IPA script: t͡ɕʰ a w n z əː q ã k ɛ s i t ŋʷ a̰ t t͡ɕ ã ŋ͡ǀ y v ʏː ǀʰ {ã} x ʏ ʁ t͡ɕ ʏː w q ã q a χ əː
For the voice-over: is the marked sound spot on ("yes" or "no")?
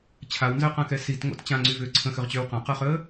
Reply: no